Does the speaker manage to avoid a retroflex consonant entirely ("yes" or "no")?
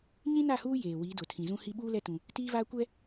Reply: yes